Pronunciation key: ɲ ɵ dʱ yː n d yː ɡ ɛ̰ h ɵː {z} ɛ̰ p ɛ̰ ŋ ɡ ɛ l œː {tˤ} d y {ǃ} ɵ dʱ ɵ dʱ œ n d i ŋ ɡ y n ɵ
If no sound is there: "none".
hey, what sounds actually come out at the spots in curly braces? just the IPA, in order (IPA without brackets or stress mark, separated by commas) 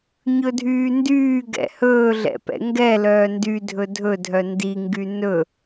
ɮ, n, dʱ